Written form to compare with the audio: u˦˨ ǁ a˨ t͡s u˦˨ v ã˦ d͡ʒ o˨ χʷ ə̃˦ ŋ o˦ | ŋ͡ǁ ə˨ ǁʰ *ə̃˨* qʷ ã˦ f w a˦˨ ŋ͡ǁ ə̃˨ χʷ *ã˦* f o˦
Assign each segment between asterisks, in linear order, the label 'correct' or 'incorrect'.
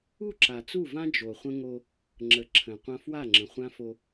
correct, correct

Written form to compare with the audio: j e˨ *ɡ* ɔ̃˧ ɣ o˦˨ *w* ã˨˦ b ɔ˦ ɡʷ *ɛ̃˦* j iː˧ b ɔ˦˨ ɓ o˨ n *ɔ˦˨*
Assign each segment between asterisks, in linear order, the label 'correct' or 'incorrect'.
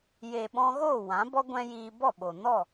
incorrect, correct, correct, correct

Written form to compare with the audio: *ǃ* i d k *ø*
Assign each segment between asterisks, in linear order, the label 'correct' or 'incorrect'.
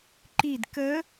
correct, incorrect

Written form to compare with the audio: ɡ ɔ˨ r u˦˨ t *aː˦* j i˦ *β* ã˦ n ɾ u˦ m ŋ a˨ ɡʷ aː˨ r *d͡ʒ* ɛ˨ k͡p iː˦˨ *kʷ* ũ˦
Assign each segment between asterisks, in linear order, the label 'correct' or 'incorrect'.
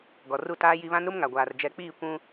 correct, correct, correct, correct

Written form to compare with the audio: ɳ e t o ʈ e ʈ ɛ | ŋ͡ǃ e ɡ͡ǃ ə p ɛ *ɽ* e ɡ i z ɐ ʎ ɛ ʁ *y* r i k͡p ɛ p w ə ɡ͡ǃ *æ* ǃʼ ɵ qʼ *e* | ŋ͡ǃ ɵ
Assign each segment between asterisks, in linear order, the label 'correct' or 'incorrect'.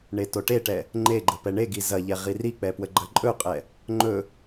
incorrect, incorrect, incorrect, incorrect

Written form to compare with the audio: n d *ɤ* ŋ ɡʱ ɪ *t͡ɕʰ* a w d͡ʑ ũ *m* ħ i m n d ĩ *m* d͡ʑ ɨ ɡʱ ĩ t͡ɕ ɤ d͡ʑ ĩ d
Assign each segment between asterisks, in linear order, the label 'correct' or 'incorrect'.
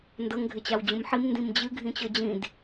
correct, incorrect, correct, correct

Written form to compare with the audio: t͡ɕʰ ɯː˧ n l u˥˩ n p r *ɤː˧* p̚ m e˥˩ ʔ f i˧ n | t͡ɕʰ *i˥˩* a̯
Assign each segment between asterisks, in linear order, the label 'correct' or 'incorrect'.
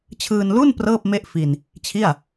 incorrect, correct

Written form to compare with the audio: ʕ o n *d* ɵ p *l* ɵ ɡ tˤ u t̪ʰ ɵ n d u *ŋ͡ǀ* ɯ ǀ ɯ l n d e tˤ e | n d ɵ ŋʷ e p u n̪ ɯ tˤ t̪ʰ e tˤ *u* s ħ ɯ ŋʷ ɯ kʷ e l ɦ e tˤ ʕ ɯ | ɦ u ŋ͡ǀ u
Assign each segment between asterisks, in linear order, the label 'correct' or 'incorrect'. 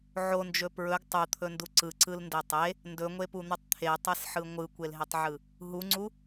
incorrect, incorrect, incorrect, incorrect

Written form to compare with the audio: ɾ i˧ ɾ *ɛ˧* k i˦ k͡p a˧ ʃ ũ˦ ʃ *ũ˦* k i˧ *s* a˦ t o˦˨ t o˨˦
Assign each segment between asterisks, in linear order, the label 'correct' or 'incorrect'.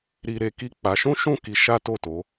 incorrect, incorrect, incorrect

